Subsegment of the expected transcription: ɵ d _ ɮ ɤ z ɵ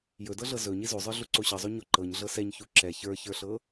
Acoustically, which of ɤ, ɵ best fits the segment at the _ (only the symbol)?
ɤ